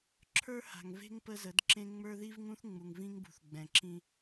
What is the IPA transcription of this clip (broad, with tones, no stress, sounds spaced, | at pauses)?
ǁʰ ə˞˦ h a̤˨ ŋ v e̤˦ ŋ p ə˦ z ə˨˦ d ǁ ẽ˦ ŋ͡m ə˞˦ ð i˦ v ŋ ũ˦ θ ŋ͡m u˨ ŋ v ĩ˦ ŋ b ṳ˨ θ ɡ͡b ɛ̃˨ ǁ ĩ˦